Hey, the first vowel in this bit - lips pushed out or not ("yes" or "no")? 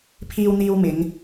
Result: no